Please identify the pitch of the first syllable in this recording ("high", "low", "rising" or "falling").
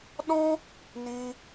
high